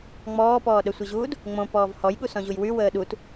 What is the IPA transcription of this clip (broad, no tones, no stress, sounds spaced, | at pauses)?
ŋ͡m ɔː p ɔː ɗ ə sʷ i ʑ uː d | ŋ͡m õ p ɔː v h ɔ j ɠ u s ɔ̃ ʑ u j w y w əː ɗ u t